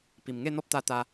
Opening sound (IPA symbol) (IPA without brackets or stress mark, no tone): p